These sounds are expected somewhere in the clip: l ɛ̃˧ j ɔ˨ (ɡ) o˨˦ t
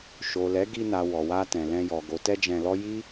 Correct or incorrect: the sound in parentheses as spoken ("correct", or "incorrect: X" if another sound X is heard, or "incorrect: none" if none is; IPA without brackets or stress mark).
correct